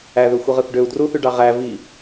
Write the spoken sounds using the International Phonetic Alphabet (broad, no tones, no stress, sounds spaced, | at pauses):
æ ð ø xʷ i ʁ ɯ θ ɖ ø u̯ d r u θ y ɖ ɑ ʁ æ v i